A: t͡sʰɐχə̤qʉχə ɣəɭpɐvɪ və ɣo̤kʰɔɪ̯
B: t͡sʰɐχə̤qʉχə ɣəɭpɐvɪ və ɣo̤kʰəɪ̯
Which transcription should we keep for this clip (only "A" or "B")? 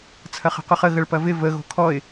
A